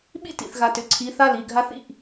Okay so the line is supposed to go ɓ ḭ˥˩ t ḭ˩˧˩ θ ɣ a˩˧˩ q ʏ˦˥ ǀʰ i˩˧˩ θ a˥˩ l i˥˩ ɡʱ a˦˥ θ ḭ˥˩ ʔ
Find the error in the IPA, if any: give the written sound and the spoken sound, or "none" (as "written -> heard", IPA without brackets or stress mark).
q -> t